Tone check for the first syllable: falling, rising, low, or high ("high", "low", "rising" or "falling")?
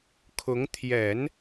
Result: rising